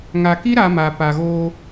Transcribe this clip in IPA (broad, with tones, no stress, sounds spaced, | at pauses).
ŋ a˨ k i˦ ɾ a˦ m a˨ p a˨ ɣ oː˦